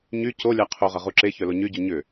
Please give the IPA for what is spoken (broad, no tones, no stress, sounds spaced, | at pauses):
ɲ y c o lʲ a qʰ o ʁ ɐ ʁ u ǁ e ç œ l o ɲ y ɟ u ɲ ʏ